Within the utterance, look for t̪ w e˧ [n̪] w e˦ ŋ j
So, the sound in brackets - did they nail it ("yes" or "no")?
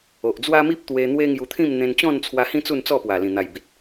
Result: yes